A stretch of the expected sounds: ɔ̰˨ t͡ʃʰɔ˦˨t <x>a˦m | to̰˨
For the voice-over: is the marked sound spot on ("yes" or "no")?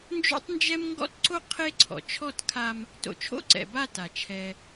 no